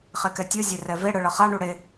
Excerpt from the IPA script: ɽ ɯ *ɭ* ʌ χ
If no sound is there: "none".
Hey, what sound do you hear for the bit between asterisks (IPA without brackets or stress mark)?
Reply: ɭ